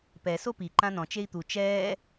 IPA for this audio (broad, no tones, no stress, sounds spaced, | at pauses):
p ɛ s o p i ǃ ã n ɔ̃ t͡ʃ e i̯ t̪ u t͡ʃ ɛː